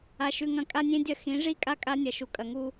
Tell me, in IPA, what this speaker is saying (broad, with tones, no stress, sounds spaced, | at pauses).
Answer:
a˦ ʃ ʉ˦ ŋ ɐ̃˦ kʼ a˦ nʲ ẽ˦ dʲ ɐ˦ x ĩ˨˦ ʐ i˦ kʼ a˦ kʼ a˦ nʲ ɐ˨ ʃ u˨ kʼ ɐ˨ ŋ u˦